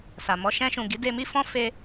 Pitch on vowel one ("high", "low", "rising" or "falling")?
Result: low